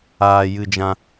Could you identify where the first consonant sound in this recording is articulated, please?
palatal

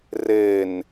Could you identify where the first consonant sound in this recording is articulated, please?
alveolar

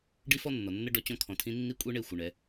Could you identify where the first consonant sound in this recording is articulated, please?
retroflex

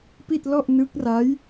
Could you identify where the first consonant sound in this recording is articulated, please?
labial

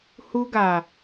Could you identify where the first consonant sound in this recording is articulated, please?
glottal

